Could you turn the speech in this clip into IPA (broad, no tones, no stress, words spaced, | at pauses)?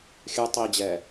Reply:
xʲʉ tˤid͡ʑɛ